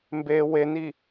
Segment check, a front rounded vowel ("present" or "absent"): absent